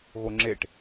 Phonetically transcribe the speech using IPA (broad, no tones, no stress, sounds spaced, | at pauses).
ɣ o ŋ͡ǁ e ʈ